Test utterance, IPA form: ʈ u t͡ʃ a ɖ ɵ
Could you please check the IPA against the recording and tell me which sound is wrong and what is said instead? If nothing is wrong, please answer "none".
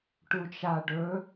none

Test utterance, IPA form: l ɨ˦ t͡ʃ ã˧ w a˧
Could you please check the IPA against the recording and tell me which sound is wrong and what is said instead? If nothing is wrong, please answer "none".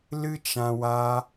none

